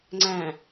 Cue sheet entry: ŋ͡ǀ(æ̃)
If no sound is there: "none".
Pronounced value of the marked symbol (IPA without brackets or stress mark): æ̃